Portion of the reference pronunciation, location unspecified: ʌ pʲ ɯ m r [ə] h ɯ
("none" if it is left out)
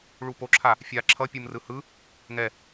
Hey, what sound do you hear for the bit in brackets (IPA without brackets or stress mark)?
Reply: ɯ